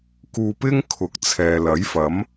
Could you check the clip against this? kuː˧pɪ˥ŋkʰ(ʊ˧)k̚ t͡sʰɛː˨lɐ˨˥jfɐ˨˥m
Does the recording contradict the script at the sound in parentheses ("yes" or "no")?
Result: yes